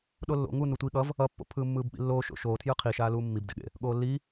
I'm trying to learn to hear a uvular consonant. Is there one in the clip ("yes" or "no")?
yes